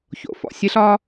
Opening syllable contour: low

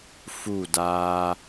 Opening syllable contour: falling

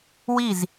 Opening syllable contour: falling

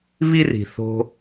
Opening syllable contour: high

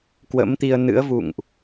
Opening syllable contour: rising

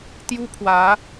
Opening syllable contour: high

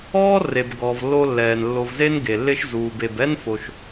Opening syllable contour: high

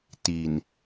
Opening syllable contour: low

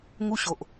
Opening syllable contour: high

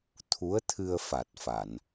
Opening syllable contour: rising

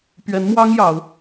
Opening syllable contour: rising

